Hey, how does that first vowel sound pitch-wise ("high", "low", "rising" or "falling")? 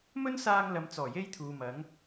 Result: high